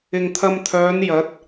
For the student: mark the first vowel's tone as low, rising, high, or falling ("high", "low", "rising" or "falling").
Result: low